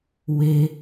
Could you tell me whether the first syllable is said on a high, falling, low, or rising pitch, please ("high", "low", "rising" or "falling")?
high